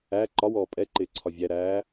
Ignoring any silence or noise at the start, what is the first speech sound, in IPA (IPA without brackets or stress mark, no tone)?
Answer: æ